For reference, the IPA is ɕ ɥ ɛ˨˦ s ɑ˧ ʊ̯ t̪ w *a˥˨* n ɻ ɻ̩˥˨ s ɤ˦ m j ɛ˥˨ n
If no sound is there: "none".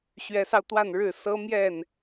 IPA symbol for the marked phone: a˥˨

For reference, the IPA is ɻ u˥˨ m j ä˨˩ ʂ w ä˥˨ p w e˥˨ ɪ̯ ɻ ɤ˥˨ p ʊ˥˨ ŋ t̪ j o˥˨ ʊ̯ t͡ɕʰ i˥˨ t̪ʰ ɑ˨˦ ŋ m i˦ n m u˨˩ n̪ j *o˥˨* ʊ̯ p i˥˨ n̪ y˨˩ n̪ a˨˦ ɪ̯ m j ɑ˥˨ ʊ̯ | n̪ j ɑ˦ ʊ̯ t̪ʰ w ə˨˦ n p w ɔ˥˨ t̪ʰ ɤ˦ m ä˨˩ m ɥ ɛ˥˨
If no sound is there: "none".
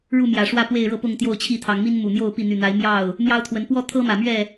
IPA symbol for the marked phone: o˥˨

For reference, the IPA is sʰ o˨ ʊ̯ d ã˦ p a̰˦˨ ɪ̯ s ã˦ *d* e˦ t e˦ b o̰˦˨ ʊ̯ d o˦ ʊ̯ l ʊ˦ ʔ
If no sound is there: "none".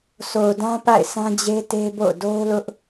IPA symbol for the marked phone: d͡ʑ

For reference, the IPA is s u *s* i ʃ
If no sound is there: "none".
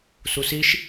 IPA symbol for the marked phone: s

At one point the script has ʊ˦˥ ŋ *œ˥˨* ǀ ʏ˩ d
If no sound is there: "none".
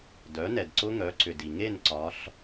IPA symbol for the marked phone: œ˩˥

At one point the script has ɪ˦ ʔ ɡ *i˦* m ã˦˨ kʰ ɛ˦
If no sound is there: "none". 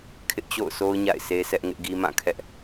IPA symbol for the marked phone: i˦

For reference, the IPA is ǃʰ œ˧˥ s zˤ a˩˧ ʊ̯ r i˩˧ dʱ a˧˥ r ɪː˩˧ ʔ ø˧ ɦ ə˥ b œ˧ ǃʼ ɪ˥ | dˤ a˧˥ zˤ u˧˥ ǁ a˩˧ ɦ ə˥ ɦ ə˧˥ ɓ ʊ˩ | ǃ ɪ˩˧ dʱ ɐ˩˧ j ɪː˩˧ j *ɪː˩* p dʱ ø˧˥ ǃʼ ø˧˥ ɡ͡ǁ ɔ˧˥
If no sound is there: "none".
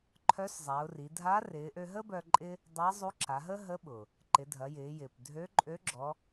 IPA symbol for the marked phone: ɪː˩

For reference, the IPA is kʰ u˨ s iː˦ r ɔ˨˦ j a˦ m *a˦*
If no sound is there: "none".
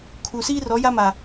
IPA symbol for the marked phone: a˨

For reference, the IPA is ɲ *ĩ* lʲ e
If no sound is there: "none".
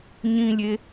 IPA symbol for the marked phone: ĩ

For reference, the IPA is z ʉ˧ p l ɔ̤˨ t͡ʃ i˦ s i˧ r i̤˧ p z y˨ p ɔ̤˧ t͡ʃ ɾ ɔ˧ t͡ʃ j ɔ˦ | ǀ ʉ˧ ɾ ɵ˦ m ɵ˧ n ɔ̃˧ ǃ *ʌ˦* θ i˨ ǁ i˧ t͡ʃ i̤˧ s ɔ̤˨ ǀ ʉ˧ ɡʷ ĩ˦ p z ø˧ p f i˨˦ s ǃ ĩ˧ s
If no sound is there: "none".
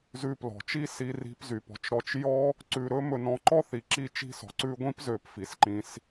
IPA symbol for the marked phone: ɔ˦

